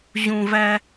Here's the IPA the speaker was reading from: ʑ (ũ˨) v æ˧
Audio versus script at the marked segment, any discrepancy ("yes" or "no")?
no